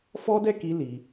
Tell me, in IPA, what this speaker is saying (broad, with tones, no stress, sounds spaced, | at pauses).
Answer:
f ɔ˦ d ɛ˦˨ k i˧ l i˧